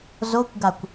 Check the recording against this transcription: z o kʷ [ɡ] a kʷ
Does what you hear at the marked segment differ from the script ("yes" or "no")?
no